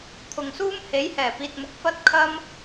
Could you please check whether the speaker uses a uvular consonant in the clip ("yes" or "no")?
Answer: no